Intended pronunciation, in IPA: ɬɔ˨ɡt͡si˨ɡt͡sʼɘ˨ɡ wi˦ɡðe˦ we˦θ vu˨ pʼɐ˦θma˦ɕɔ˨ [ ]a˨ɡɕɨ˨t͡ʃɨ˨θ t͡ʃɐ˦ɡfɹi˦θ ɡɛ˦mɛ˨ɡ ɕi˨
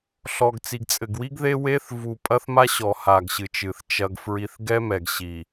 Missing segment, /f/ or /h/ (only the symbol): h